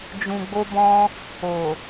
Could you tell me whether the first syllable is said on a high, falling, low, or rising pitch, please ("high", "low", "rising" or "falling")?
low